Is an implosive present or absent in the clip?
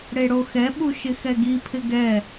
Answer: present